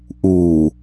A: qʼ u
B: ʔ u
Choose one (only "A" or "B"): B